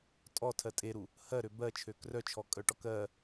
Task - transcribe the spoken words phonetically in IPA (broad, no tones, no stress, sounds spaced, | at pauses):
tʼ ɔ tʰ ɜ tʼ e ɾ u | h ɜ ɾ ø b ɜ t͡ʃʰ ø k r œ t͡ʃʰ ɔ kʼ œ ʈ ɔ k ɜ